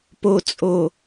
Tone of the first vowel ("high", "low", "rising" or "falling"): low